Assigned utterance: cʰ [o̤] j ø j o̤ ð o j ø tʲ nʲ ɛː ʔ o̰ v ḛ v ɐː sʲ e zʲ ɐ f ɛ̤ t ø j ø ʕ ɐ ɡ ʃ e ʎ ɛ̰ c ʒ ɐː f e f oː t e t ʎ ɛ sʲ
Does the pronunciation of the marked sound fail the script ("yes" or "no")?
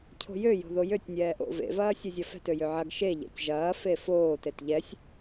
no